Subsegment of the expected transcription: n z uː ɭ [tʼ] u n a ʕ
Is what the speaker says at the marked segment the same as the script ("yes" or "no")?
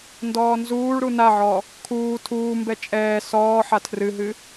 no